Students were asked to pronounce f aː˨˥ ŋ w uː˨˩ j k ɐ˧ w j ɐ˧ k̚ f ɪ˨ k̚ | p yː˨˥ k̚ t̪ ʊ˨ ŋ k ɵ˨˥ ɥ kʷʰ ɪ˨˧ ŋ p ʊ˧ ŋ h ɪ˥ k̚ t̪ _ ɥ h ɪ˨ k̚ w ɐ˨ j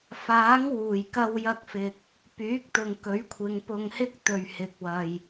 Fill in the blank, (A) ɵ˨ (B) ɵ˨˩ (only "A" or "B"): A